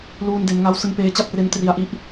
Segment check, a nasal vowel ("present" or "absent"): absent